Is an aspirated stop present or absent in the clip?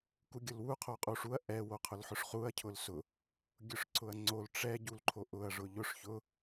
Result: present